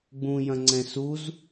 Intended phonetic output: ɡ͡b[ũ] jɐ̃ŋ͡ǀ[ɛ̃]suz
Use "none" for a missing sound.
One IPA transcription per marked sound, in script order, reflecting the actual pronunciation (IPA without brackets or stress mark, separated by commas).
ũ, ɛ̃